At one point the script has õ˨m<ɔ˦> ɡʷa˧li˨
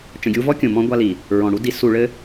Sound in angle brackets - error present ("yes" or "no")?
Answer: yes